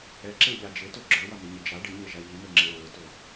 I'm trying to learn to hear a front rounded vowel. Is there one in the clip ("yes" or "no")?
no